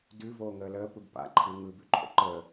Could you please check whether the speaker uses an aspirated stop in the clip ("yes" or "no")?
yes